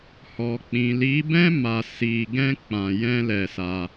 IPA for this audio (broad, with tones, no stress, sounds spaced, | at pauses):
h ɔ˨ k͡p ĩ˨ l i˨˦ b ɛ̃˦ m a˧ s i˧ ɡ ɛ̃˦ k͡p ã˧ j ɛ̃˦ l ɛ˧ s a˧